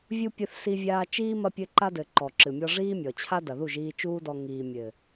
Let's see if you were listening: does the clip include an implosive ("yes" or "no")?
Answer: no